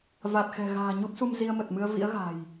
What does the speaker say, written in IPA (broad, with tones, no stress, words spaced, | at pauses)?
va˨˩t̚xɛ̤˨˩ɣa̤ː˨˩ ɲu˦˥p̚su˧m zi˧ə̯mə˨˩t̚mɨ˧ə̯ vḭ˧˥ə̯ɣa̤˨˩j